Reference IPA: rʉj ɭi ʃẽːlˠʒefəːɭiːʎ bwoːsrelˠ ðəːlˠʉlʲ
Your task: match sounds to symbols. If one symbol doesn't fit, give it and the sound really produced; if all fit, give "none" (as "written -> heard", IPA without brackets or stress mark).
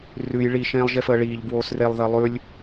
none